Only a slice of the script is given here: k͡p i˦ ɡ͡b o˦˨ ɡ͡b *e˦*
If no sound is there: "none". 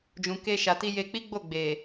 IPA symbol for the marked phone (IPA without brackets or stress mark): e˨